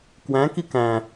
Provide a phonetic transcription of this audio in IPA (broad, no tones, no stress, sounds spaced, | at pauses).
k w æ̃ k i k æ̃